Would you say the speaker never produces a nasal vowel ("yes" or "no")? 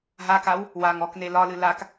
yes